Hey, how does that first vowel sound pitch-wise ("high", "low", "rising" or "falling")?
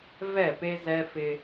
falling